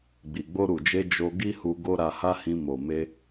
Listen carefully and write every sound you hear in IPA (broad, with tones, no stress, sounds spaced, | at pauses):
ɡ͡b i˨ ɡ͡b o˧ ɾ u˨ d͡ʒ e˧ d͡ʒ o˧ ɡ i˦ h u˧ ɡ o˧ ɾ a˧ h a˦ h ĩ˧ m o˨ m e˧